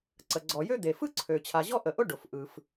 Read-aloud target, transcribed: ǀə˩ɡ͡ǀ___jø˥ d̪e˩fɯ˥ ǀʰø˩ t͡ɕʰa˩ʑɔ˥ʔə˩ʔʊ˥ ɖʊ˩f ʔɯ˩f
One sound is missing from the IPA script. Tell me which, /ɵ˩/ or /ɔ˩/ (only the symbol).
ɔ˩